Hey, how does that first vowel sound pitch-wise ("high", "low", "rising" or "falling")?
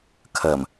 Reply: low